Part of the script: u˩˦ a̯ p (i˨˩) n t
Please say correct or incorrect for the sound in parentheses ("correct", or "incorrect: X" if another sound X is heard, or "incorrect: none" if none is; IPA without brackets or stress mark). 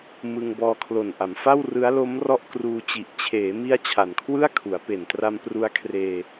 incorrect: e˨˩